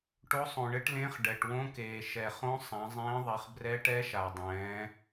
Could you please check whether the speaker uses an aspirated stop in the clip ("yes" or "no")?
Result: no